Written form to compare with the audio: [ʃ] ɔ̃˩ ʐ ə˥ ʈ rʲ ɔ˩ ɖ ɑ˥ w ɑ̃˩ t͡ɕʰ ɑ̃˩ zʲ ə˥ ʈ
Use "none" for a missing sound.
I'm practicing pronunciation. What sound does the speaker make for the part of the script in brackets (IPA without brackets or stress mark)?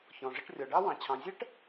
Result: ç